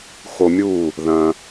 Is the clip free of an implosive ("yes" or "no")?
yes